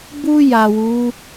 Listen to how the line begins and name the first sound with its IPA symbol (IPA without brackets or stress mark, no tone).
b